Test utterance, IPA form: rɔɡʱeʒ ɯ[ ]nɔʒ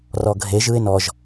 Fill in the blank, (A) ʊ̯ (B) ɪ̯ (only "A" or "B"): B